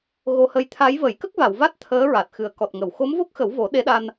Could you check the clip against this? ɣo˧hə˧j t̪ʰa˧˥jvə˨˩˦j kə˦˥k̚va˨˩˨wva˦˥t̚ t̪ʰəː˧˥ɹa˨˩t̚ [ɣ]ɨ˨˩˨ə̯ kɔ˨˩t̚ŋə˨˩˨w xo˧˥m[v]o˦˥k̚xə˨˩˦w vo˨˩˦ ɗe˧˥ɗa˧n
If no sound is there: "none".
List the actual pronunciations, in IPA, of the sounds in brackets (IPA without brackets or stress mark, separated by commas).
x, v